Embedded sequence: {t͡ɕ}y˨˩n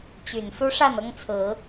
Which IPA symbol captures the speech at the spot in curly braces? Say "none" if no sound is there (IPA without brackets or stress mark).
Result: t͡ɕ